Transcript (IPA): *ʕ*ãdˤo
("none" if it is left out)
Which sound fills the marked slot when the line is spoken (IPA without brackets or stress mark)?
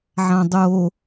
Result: ʕ